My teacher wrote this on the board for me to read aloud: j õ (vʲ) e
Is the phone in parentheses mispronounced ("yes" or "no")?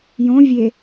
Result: no